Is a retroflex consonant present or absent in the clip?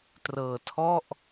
absent